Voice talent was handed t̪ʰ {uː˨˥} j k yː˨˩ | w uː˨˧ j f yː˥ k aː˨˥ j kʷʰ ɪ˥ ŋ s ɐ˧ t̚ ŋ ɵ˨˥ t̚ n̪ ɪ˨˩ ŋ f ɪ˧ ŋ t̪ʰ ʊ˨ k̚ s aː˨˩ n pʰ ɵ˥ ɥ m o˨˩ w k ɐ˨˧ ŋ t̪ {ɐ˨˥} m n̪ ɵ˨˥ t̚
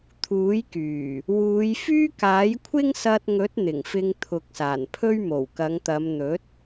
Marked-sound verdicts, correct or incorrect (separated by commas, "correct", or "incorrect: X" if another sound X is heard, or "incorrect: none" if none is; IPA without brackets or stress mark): correct, incorrect: ɐ˨˧